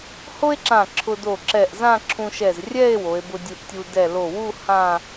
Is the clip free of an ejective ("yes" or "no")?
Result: yes